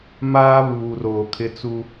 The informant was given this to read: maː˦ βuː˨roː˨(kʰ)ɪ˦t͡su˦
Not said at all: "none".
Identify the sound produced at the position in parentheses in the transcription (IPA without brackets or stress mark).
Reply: kʰ